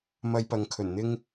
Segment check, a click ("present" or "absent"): absent